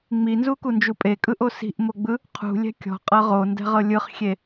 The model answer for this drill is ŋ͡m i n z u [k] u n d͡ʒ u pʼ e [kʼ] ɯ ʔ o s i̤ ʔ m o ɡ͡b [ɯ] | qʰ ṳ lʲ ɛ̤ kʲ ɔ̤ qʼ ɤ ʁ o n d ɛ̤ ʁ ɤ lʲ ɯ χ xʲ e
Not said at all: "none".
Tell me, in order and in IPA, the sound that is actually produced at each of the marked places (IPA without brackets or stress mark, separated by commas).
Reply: k, kʼ, ɯ